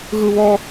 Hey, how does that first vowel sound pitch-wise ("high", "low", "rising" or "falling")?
high